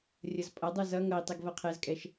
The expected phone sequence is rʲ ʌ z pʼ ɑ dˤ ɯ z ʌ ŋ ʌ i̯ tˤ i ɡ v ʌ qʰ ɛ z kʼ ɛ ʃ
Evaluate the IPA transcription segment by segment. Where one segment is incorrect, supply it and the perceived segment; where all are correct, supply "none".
ɑ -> ʌ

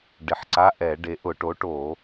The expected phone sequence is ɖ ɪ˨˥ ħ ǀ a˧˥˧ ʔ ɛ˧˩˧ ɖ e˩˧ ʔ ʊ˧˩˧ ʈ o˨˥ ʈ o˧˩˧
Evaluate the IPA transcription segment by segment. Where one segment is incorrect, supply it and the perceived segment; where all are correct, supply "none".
none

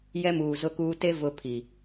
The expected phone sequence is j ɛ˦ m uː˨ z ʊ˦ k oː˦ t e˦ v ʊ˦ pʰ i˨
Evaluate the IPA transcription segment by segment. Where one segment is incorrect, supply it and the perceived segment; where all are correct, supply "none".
oː˦ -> uː˦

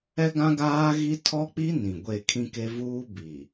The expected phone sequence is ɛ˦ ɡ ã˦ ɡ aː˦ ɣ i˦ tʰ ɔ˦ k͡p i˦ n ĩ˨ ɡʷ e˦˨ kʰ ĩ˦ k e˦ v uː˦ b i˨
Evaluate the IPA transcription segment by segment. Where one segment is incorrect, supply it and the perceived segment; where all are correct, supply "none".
none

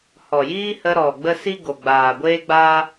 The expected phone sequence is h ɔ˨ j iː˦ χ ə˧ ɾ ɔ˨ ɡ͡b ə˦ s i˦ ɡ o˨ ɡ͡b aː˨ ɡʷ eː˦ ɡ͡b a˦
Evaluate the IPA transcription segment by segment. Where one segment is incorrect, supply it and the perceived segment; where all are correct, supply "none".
χ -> h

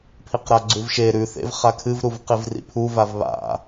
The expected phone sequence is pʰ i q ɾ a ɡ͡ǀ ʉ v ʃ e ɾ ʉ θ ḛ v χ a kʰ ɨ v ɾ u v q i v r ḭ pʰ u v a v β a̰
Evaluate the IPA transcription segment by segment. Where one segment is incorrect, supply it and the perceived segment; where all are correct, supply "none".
none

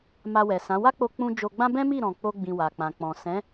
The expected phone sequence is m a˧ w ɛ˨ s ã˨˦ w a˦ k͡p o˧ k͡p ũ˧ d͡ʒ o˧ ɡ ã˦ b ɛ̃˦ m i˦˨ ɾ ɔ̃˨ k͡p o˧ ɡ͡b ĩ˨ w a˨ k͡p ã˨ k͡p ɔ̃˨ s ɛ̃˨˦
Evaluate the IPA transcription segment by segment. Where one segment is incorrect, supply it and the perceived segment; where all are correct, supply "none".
ɡ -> ɡ͡b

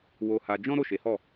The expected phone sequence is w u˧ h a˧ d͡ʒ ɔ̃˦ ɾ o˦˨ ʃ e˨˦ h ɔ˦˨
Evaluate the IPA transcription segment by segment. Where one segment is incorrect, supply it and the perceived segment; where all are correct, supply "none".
u˧ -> o˧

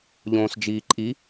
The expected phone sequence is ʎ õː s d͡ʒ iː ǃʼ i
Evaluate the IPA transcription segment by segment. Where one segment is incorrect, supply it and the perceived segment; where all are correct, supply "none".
none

